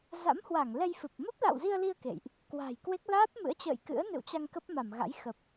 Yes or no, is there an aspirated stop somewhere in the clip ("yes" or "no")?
no